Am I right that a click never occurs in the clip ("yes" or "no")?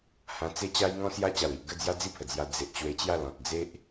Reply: yes